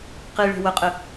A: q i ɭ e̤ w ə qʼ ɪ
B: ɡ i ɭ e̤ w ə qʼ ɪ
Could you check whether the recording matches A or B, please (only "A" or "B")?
A